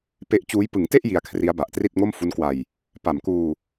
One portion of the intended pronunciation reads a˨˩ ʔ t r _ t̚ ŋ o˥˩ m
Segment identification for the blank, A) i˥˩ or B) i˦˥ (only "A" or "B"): A